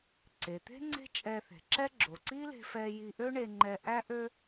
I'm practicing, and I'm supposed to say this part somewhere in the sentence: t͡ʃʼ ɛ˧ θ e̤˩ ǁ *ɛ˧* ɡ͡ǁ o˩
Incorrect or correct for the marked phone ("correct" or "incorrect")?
incorrect